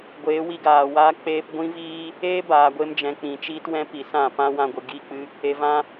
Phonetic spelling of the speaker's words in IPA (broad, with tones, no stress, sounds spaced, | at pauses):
ɡʷ eː˨˦ w i˧ ɡ aː˨ w aː˦ k͡p eː˧ p ɡʷ ĩ˦ v iː˦ | eː˦ b aː˨ ɡʷ e˧ m d͡ʒ ɛ̃˨ k͡p ĩ˨ t͡ʃ iː˦ t w ɛ̃˦ p i˨ s ã˦˨ p ã˦ w ã˧ ɡʷ ɨ˨ ɡ i˦˨ k͡p ɨ˦ | e˨ v ã˧